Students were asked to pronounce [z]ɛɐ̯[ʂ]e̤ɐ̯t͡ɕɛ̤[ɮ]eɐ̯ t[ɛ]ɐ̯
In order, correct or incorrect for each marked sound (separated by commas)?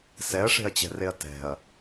incorrect, correct, incorrect, incorrect